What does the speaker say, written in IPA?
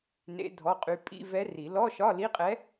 n ḛ˧˥ dʱ ɔ˧˥˧ qʼ y˧˥ pʼ ḭ˧˥˧ v ɛ˧˥ r i˨˩˦ l ɔ˧˥˧ ʃ ɒ˧˥˧ l i˧˥˧ qʼ ɛ˧˥

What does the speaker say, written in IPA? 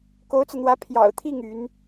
k o˧˥ ʊ̯ t͡s ɤ˧ n̪ w ä˧˥ pʰ j ɑ̰˨˩ ʊ̯ t̪ʰ i˥˩ ŋ y˧˥ n

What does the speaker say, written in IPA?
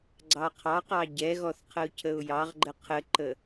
ɡ͡ǀ ɑ qʰ ɑ q ɑ ɟ ɛ ɣ ɔ θ qʰ ə ʊ̯ cʰ ə ʊ̯ j ɑ ʁ ɡ͡ǃ ə qʰ ə ǃ ə

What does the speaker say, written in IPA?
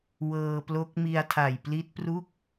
w ɤː˧ p l o˦˥ k̚ m i˧ a̯ tʰ a˨˩ j p l i˦˥ t̚ p r u˥˩ k̚

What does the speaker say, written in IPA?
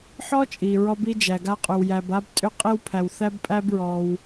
ħ ɔ˥ t͡ʃʼ i˩ ɹ ɔ˥ b i˥ d͡ʒ æ˩ ɡ a˥ qʼ ʏ˩ w j æ˩ b a˥ b tʼ ʏ˥ qʼ i˥ w pʰ æ˩ w θ æ˥ b pʼ æ˥ b ɹ ɔ˩ w

